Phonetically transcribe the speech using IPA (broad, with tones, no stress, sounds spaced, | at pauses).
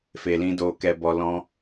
f e˨ l ĩ˧ d oː˧ k ɛ˧ b ɔ˧ l ɔ̃˧